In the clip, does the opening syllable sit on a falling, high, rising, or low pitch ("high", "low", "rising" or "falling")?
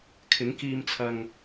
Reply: rising